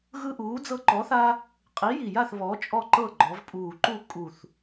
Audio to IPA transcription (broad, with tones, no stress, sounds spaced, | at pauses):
ɣ ɯ˦ ʔ uː˨˥ d͡z ɤ˦ ǃ ɔ˨˥ θ a˦ | qʼ i˨˥ j i˨˩ j a˥˨ θ β ɔ˨˥ t͡ʃʼ ɔ˥˨ ǃ ɤ˥˨ ɡ͡ǃ ɔ˩˧ v pʼ uː˨˩ ǃ u˥˨ kʼ u˨˩ θ